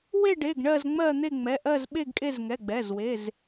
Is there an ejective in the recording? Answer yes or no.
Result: yes